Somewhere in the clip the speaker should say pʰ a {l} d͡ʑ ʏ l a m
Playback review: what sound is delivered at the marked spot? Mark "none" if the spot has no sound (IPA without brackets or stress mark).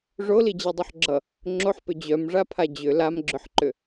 none